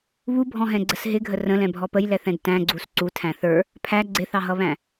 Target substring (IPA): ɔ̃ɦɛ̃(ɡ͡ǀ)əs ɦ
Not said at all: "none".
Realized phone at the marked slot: ɡ͡ǀ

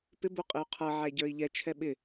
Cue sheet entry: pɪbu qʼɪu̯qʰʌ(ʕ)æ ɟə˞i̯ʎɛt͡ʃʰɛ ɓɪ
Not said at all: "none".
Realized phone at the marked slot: ʕ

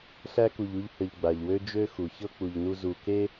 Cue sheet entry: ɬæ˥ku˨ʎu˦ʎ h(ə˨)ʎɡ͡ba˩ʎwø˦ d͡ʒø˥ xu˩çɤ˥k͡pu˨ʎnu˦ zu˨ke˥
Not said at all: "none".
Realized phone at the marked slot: ə˨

